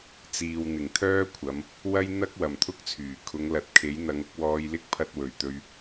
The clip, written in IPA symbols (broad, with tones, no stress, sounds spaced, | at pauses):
t͡s iː˨ w n̪ ɪ˨˩ ŋ t̪ʰ œː˥ kʷʰ ɐ˨˧ m | w ɐ˥ j n̪ ɐ˥ k̚ w ɐ˨ m t̪ʰ ʊ˥ k̚ t͡sʰ yː˨˩ kʰ ʊ˨˧ ŋ l ɐ˨˥ t̚ kʰ e˨˥ j n̪ ɐ˨˧ ŋ ʊ˨˥ k̚ w ɔː˧ j l ɪ˥ k̚ pʰ ɐ˧ t̚ w ɵ˨ ɥ t̪ ɵ˧ ɥ